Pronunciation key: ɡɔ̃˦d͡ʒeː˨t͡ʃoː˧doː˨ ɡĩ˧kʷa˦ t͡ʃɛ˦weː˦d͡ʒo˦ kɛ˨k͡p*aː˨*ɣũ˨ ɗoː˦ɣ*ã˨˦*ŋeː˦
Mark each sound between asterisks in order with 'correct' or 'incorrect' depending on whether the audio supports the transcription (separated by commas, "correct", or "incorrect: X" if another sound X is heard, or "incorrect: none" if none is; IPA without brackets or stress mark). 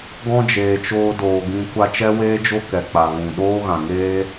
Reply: incorrect: a˨, incorrect: ã˨